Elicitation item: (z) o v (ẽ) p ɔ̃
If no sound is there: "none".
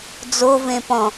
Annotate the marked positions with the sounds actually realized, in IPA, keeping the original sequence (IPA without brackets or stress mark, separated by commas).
d͡z, ẽ